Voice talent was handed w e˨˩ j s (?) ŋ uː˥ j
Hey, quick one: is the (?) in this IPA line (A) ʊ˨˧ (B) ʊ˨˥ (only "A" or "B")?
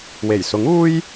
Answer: B